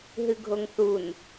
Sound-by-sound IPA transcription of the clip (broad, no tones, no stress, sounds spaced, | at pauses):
ɦ ɨ ɡʱ o ŋ θ u n